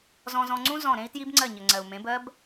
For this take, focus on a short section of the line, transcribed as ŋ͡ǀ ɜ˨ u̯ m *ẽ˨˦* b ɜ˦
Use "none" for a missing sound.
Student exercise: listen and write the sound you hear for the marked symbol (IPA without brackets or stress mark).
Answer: ẽ˨˦